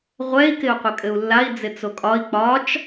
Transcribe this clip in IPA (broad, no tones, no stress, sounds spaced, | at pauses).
ʁʷ ɛ i̯ k ɪ u̯ qʷ ɘ kʼ ɘ u̯ lː a i̯ d͡z ɪ t͡s o kʼ ɒ i̯ k͡p ɒ t͡ʃ